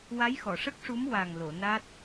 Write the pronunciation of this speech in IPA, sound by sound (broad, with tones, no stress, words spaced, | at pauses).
wa˧˥jxɔ˨˩˨ʂə˦˥k̚ʂu˧˥m wa˨˩ŋlo˨˩˨na˦˥t̚